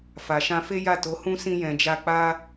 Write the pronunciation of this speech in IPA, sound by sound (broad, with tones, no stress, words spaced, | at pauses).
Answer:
fa˨ʃã˧fe˦ja˦˨ to˨˦hũ˦sĩ˧ jɛ̃˨d͡ʒa˧k͡pa˦